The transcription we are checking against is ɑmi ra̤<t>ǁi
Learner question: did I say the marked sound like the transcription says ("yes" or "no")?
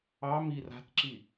yes